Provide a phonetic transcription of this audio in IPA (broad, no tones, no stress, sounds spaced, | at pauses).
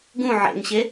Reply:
ɡ ũ ʕ ḛ ŋ ɕ e